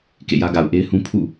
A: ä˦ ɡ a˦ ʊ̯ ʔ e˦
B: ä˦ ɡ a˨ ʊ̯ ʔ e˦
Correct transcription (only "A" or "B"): B